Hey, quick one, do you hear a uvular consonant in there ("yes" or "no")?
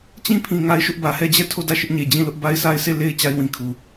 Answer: no